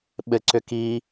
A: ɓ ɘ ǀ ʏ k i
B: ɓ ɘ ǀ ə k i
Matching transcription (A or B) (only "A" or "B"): A